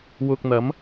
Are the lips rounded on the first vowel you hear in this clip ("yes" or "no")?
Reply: yes